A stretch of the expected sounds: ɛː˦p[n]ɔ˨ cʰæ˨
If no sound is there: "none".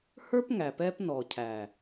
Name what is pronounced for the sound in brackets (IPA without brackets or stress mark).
n